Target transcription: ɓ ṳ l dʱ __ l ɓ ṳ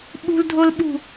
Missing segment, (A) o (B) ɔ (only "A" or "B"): A